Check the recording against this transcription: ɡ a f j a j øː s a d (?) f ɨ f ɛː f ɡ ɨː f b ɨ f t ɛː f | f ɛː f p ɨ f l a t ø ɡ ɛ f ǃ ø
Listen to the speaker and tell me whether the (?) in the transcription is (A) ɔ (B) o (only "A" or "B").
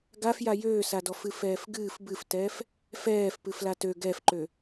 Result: A